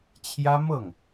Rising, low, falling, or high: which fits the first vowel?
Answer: high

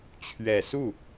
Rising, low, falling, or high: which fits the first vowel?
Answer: low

